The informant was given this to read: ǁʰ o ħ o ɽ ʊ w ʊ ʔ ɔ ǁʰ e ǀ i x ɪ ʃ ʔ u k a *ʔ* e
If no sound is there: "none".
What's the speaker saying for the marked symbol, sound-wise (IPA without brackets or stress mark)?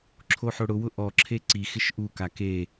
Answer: k